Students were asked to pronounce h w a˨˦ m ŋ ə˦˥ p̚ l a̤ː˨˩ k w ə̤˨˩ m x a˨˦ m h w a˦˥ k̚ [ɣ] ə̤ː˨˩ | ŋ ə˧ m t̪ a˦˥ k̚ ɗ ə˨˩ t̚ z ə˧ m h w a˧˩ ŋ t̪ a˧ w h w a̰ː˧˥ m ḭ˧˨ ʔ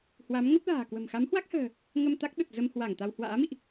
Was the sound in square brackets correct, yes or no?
no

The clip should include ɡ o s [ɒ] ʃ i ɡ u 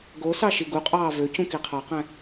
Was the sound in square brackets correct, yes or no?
no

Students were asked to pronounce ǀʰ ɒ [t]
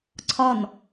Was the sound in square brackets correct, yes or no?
no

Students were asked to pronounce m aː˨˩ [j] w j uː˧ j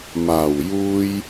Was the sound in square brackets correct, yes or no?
no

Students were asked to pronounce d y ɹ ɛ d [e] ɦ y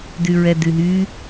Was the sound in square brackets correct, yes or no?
no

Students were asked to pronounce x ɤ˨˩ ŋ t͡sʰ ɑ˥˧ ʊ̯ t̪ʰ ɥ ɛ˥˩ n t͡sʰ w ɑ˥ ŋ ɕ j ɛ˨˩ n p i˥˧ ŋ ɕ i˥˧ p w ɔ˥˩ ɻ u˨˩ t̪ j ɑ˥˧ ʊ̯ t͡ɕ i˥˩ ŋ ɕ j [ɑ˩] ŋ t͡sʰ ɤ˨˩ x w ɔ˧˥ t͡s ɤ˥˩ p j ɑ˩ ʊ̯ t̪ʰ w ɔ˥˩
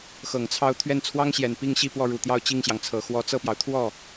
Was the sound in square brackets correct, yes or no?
yes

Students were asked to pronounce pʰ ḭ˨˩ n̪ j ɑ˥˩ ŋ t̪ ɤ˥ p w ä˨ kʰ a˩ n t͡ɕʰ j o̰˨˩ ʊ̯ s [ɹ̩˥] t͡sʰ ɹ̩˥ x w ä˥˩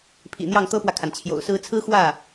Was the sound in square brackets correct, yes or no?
yes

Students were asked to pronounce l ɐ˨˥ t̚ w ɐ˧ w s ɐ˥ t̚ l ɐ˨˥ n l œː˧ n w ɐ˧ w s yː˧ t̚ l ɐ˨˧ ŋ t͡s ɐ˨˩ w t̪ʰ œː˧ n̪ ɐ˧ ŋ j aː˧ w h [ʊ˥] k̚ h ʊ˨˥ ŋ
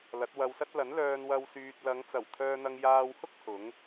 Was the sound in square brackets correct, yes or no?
yes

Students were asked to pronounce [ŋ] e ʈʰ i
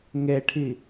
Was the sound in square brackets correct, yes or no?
yes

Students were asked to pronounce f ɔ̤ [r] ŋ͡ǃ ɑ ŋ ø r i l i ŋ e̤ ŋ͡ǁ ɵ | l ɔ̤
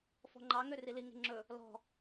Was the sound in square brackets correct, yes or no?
no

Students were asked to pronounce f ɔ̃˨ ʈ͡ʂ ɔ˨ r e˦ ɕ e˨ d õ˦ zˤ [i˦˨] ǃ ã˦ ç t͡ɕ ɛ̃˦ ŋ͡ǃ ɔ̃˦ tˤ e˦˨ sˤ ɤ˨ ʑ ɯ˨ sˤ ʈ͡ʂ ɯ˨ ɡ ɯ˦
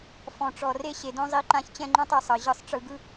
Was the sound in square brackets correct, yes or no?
yes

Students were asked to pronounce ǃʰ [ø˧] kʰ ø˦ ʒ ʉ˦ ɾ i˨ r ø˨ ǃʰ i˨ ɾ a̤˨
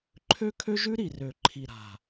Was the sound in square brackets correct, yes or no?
no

